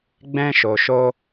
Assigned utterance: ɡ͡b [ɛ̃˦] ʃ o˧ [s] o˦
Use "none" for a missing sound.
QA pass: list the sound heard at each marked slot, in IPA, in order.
ɛ̃˦, ʃ

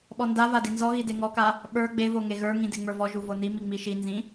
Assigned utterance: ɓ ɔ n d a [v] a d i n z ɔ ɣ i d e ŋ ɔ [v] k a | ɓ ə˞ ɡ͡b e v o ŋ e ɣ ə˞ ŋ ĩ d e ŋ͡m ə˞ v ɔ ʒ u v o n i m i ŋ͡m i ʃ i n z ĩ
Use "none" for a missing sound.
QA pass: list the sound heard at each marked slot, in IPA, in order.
v, none

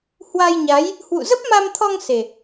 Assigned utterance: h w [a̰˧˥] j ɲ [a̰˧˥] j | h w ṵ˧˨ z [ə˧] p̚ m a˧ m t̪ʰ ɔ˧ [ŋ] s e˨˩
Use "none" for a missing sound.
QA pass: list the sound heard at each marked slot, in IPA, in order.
a˧, a˨˦, ə˦˥, ŋ

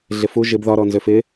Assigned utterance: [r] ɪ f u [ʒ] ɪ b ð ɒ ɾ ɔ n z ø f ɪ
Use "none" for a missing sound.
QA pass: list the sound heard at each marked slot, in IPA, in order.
ɮ, ʒ

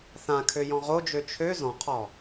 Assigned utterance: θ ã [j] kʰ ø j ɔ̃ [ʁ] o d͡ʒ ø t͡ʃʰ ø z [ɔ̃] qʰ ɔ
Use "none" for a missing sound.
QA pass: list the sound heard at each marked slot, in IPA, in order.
none, ʁ, ɔ̃

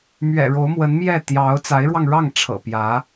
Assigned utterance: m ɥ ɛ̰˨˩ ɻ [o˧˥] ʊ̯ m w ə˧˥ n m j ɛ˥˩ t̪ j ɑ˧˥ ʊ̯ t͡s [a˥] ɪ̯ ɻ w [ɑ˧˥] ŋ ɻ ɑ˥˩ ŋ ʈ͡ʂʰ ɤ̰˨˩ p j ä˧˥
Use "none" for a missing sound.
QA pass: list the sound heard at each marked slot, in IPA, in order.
o˧˥, a˧˥, ɑ˧

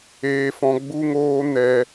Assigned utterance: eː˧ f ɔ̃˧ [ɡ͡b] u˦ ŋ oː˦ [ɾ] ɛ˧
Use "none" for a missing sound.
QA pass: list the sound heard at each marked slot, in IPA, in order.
ɡ͡b, n

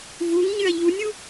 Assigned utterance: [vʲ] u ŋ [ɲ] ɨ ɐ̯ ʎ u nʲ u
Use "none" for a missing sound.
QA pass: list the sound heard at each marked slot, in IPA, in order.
v, ɲ

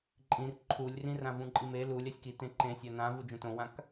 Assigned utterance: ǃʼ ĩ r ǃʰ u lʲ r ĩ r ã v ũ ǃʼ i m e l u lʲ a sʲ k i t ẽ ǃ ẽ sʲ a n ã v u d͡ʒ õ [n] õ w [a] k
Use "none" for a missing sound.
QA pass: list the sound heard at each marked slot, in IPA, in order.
t, ã

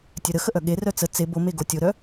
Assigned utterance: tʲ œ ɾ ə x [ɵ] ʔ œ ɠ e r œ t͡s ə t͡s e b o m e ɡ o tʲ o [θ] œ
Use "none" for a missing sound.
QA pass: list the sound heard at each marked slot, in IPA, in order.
ə, ɾ

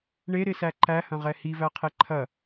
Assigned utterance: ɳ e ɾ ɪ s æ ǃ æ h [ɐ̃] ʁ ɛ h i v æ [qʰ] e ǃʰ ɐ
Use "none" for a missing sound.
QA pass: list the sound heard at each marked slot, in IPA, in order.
ɐ̃, qʰ

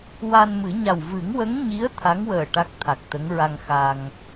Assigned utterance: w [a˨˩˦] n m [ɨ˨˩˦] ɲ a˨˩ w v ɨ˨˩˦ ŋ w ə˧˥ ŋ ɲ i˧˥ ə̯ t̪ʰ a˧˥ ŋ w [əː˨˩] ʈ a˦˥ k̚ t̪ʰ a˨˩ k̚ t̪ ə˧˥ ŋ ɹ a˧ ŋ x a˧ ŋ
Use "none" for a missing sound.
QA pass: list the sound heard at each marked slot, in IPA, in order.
a˧, ɨ˨˩˦, əː˨˩

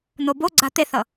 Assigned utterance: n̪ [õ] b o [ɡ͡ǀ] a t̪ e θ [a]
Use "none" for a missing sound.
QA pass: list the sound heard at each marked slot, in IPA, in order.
o, ɡ͡ǀ, ʌ

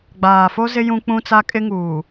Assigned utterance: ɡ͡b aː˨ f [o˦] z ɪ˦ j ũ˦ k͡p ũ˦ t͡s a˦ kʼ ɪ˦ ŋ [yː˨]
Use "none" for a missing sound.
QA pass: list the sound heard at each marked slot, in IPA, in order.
o˦, uː˨

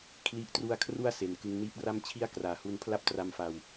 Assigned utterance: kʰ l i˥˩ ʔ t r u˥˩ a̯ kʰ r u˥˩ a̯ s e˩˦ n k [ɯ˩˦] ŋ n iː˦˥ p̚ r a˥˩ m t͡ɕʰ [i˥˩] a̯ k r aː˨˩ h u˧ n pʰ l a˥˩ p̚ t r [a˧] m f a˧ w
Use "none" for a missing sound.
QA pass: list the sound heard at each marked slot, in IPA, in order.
ɯ˧, i˥˩, a˧

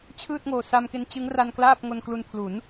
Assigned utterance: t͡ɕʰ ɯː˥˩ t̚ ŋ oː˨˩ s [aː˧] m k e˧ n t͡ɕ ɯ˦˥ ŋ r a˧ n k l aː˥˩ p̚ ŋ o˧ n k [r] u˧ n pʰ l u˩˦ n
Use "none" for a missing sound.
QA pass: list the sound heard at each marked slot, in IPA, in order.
a˧, l

